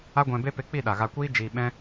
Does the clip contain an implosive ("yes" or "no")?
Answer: yes